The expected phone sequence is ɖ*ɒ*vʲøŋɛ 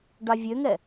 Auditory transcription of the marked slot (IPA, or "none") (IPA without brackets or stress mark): ɑ